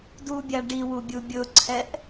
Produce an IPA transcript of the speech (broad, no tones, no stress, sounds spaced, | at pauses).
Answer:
d u bʲ a ɖ i w u bʲ u bʲ ʊ ǀʰ ɛ ʔ